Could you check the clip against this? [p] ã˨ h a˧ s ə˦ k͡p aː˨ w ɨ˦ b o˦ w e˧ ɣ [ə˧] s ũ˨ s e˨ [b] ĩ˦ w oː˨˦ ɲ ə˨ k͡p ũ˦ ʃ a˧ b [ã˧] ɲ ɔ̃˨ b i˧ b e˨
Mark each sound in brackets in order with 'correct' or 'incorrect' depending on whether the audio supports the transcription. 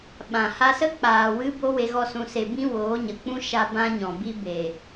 incorrect, incorrect, correct, correct

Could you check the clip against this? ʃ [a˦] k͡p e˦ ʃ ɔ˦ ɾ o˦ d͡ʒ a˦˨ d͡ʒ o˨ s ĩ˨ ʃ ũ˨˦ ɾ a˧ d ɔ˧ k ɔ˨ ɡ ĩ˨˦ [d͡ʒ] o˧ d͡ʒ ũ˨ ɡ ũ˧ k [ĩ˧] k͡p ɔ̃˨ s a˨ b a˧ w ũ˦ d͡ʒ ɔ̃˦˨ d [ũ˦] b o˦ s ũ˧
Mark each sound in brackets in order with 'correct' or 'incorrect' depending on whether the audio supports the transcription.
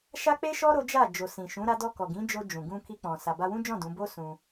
correct, correct, incorrect, incorrect

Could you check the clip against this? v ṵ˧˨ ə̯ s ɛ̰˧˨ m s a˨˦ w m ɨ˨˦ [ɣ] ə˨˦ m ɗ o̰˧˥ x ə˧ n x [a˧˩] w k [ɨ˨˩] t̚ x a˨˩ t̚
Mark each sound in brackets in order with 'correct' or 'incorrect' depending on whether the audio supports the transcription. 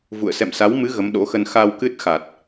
correct, incorrect, incorrect

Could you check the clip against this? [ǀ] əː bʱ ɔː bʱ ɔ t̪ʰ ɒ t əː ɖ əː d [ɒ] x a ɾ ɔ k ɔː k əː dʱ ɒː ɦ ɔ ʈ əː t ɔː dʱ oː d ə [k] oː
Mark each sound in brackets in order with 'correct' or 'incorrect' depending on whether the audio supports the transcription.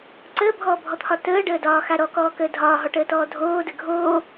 correct, incorrect, incorrect

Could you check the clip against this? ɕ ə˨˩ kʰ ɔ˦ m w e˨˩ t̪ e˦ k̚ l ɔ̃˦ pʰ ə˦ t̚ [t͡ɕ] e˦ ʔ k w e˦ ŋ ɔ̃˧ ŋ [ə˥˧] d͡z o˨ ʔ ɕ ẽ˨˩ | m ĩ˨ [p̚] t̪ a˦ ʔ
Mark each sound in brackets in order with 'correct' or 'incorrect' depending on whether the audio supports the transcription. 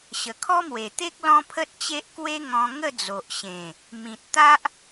correct, correct, incorrect

